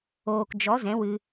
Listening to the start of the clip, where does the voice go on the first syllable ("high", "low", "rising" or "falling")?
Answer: low